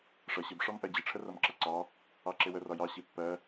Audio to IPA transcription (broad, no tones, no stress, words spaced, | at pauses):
ʂʌ ɕɪb ʂɒmʔɜd͡ʑɪ ʈ͡ʂʰərʌmǁʌǀɑ | ɑǁɪwə rɒjɑ ɕipːɜ